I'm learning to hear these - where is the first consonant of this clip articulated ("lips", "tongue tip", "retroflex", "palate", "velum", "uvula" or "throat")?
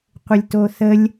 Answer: uvula